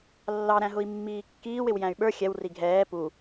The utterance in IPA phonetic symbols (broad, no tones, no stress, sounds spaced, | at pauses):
lː ɑ ɾ æ̃ ɦ ʊ i̯ mː iː kː iː w ɪ w j æ̃ y̯ ɓ ə˞ xʲ ɛ w r i ɡʱ ɛː p u